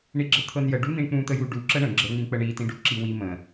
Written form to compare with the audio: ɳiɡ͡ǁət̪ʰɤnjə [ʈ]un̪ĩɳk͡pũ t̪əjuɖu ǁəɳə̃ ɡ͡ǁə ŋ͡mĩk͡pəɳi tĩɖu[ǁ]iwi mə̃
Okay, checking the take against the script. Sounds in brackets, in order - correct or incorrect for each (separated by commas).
incorrect, correct